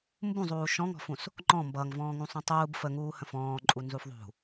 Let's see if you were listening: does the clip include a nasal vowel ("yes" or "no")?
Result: yes